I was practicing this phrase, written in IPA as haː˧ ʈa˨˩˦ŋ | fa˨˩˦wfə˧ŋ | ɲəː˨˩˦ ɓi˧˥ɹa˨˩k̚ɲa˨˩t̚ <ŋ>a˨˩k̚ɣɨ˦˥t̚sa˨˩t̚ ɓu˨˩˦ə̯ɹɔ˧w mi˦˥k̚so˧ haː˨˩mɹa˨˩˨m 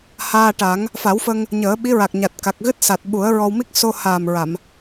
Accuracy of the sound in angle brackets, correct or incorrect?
incorrect: k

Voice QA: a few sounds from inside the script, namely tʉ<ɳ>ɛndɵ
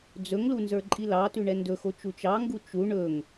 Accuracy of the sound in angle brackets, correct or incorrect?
correct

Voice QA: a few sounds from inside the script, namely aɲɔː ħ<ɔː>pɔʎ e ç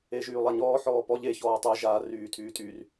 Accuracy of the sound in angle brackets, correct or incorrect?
correct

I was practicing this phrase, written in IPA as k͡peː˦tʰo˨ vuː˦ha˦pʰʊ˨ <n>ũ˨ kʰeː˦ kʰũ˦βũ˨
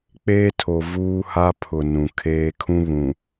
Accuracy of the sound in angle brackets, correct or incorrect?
correct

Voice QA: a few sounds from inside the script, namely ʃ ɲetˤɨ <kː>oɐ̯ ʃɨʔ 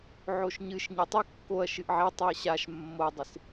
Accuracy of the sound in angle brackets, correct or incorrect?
correct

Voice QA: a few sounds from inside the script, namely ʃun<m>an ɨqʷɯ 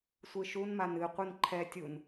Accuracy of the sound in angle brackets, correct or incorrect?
correct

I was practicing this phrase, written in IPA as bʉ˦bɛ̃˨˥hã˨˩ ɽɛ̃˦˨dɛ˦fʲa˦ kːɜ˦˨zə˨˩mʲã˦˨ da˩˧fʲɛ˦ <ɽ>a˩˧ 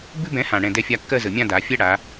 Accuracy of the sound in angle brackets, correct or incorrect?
correct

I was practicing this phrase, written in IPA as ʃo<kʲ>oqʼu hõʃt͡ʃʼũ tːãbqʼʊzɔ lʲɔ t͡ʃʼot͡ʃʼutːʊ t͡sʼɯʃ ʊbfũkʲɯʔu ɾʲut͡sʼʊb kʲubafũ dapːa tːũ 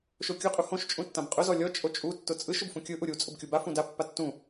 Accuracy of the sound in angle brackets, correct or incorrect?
correct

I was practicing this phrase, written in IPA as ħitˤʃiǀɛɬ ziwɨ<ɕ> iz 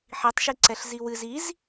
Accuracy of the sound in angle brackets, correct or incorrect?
incorrect: z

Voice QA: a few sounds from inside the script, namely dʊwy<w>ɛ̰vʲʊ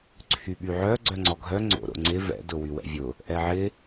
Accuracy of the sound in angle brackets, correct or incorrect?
correct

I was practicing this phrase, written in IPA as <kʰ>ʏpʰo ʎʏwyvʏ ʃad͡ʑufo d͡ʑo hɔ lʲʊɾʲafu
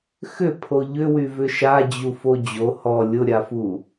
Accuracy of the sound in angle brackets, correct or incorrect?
incorrect: x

